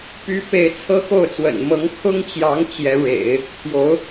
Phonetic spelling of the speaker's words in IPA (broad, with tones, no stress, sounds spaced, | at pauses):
p y˧˥ p e˧˥ ɪ̯ t͡sʰ ɤ˥ x o˥˩ ʊ̯ t͡s w ə̰˨˩ n m ɤ˧˥ ŋ kʰ ʊ˥ ŋ t͡ɕ j ɑ˧˥ ŋ t͡ɕ j ɛ˧˥ ɻ ḛ˨˩˦ ɪ̯ | pʰ j o˧˥ ʊ̯